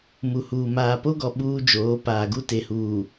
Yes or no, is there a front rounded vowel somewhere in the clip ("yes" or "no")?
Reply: no